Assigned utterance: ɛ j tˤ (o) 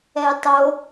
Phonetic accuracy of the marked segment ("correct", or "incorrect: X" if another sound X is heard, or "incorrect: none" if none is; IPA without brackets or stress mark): correct